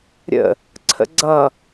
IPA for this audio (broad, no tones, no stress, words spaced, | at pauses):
ɾʲə̰ | ǀʰə̰ɡ͡ǀʌ